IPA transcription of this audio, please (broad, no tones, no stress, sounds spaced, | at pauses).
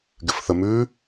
ɡ ɪ f θ ə m ʉ